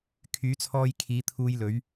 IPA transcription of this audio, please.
kʰ yː˨˥ t͡sʰ ɔː˧ j kʰ iː˨˧ t̪ʰ uː˧ j l ɵ˨˧ ɥ

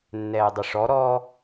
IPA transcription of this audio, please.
nː ɛː dˤ ʏ ʂ ɔ ɾ ɔ

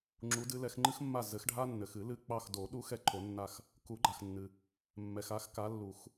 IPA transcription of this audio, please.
ŋ͡ǁ u˨˦ d ɨ˨˦ l ɛ˨˦ x ŋ͡ǃ ɨ˦ x mː a˦˨ z ɘ˨˦ x ɖʱ a˦ nː ɘ˨ x ɨ˨˩˦ l ɨ˦˨ k͡p ɑ˦˨ x d o˨˩˦ ɗ u˦ x ɛ˦ ǃʰ o˨˩˦ nː a˦˨ x | k u˨˩˦ ɡ͡ǃ a˨ x nː ɨ˨ | mː ɛ˨ x a˨˦ x k a˨˦ lː u˨˩˦ x

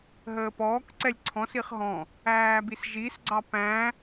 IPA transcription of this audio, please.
ɦ əː p ɔː k ǀ ɛ lʲ ǀʰ ɔ̃ s i χ ɦ ɔ̃ | æː b i s ʒ i s ɡ͡ǀ ɑ p æ̃

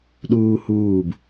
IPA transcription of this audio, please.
ɗ uː h uː b

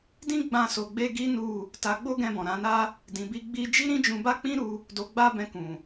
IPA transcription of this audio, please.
d ĩ˦ ɡ͡b ã˧ s o˧ ɡ͡b e˦ ɡ i˦ n u˦˨ | t a˧ ɡ͡b o˦ ɡ ɛ̃˧ b ɔ̃˨ ɾ ã˨˦ n a˦ | d ĩ˨ b i˧ ɡ͡b i˦ d͡ʒ i˦ ɾ ĩ˦ d͡ʒ ũ˧ b a˦ k͡p ĩ˦ ɾ u˧ | d o˧ ɡ͡b a˦ b ɛ̃˧ k ũ˨

